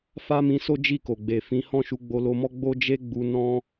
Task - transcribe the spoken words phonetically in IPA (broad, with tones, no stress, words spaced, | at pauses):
fa˦mĩ˧so˦ d͡ʒi˦˨ko˨ɡ͡be˨ fĩ˨˦hɔ̃˦˨ ʃu˧ɡ͡bo˧lo˧mɔ˦ ɡ͡bo˦d͡ʒe˦ɡ͡bu˧ nɔ̃˦